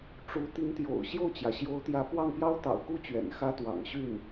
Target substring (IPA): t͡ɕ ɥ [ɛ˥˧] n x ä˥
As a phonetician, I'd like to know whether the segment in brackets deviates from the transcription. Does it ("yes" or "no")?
yes